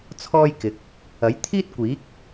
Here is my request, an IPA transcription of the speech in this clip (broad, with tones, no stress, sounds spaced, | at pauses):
t͡sʰ ɔː˥ j k ɪ˨˥ k̚ | ɐ˨˥ j t̪ʰ iː˥ t̚ kʷ iː˨˥ k̚